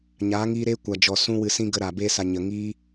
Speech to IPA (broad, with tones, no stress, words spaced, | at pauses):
ɲaː˨˦ŋiː˧ɾeː˦ kʷa˨d͡ʒɔ˨ sũ˦wɨ˧sĩ˦ ɡə˧ɾa˨ beː˧sa˨ ɲə˨ŋiː˦